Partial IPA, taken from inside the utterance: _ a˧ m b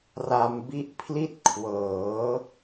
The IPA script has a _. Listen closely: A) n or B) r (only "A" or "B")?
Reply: B